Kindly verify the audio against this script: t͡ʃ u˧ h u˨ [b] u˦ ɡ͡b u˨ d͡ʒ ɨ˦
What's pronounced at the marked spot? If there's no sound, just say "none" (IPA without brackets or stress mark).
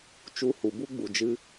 b